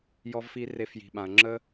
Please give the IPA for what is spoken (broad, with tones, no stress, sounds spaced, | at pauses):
j ɔ˧ v f i˧ r e˧ f j i̤˨ ɓ ã˨ ɐ̯ ŋ͡ǁ ə˦